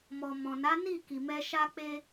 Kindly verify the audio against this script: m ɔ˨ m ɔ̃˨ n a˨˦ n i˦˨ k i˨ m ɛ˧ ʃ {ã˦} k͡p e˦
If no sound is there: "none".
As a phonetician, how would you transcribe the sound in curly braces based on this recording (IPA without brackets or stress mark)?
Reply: a˦